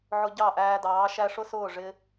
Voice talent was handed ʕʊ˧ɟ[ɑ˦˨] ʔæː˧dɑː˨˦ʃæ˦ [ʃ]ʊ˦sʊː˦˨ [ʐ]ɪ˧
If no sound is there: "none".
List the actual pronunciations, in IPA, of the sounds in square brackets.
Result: ɑ˦˨, ʂ, ʐ

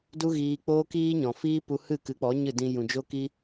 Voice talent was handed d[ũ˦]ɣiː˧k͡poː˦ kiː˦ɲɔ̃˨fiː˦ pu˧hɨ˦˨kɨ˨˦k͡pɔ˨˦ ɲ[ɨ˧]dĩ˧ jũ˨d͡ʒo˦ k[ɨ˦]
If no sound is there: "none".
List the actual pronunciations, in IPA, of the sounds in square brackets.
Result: u˦, ɨ˦˨, i˦

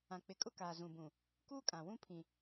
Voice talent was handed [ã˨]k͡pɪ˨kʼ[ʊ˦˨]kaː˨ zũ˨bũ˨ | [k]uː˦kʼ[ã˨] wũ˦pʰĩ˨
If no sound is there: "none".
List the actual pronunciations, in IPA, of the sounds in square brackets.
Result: ã˨, ʊ˦, k, ã˨

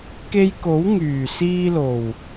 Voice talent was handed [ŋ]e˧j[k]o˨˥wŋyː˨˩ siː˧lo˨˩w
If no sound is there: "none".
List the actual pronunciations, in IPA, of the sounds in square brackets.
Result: k, k

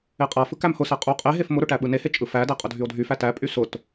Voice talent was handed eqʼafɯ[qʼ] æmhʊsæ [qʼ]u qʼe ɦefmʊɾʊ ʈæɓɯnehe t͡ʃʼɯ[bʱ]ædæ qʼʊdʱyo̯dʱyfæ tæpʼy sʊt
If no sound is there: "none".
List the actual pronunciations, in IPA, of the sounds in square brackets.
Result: k, qʼ, f

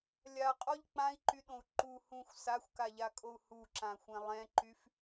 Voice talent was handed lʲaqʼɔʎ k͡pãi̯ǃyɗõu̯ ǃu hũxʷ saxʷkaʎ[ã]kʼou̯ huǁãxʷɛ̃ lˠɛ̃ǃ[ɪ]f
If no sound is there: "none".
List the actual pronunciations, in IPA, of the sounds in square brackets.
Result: a, y

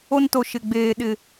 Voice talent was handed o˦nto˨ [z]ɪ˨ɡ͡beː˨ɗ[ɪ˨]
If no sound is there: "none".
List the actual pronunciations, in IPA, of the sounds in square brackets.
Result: ʃ, ɪ˨

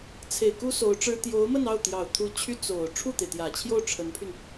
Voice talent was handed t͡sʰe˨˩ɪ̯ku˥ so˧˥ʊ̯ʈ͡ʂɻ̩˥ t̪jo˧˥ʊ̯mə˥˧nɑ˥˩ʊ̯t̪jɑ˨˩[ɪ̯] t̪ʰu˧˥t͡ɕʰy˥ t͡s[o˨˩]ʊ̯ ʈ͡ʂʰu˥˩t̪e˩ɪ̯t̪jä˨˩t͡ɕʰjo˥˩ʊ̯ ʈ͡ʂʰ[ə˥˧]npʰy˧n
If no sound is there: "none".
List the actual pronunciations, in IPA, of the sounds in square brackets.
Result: ʊ̯, o˨˩, ə˧˥

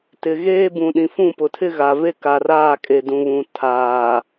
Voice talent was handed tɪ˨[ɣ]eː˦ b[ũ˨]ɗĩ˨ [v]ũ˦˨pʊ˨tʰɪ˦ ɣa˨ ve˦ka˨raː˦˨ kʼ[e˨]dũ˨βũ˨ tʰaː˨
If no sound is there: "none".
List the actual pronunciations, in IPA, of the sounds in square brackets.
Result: ɣ, ũ˨, f, e˨

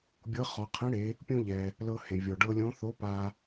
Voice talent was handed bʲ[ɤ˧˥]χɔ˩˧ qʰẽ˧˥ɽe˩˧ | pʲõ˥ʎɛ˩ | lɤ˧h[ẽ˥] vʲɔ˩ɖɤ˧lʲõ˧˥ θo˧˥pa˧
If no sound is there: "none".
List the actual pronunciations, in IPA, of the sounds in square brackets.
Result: ɤ˧˥, ẽ˩

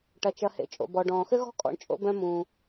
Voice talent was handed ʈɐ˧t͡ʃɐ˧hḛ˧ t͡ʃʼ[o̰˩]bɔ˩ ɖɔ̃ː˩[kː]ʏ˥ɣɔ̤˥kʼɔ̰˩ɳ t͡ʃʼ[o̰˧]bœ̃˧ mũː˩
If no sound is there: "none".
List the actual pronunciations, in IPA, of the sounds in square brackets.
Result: o̰˩, x, o̰˧

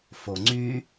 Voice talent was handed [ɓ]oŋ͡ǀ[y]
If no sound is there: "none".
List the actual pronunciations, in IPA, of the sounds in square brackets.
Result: f, y

